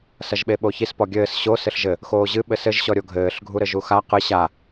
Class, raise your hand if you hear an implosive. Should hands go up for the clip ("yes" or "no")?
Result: yes